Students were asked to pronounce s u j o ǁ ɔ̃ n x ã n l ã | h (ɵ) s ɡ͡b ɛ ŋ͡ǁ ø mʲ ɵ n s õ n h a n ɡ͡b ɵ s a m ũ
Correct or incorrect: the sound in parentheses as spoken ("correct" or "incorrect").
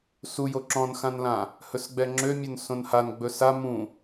correct